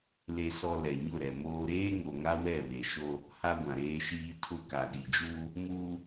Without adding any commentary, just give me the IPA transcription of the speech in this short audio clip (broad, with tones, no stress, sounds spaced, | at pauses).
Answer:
l e˨ s ɔ˨ l ɛ˨ ɲ ʊ˦˨ ɾ ɛ˨ m oː˦ ɾ eː˦ ŋ o˨ ŋ a˦ w ɛ˦˨ β e˨ ʃ o˦ | h a˦ ɡʷ ã˨ ɾ eː˦ ʃ iː˦ tʰ ʊ˦˨ k a˨ ɗ i˨ d͡ʒ uː˦ | m uː˦